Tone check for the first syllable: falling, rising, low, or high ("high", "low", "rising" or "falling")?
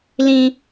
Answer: high